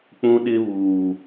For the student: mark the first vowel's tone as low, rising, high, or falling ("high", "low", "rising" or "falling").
high